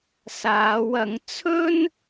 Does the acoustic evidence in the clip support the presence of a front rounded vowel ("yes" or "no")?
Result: no